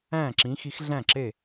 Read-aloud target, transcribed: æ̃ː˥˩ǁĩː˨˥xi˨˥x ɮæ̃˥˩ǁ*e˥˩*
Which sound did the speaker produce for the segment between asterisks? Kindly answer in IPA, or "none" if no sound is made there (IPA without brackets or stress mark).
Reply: e˥˩